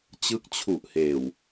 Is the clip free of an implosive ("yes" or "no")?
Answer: yes